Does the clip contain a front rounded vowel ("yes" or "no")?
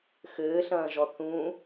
no